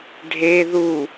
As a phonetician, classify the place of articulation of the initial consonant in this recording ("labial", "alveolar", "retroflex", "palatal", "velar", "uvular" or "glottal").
retroflex